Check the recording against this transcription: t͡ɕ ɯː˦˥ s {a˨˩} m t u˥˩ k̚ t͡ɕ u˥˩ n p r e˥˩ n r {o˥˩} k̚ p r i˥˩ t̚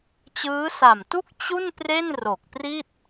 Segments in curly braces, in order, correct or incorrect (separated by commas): correct, incorrect